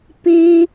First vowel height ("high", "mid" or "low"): high